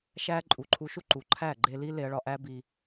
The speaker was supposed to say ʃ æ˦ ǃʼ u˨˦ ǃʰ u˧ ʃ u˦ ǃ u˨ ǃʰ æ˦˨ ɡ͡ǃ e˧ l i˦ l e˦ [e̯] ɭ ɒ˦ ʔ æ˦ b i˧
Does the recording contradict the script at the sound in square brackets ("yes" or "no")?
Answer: yes